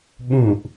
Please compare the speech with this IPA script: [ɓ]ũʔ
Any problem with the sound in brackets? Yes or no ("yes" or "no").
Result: no